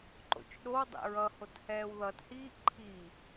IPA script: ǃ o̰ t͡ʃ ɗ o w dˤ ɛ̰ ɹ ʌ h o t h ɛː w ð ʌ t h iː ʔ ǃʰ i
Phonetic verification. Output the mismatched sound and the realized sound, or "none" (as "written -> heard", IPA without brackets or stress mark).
none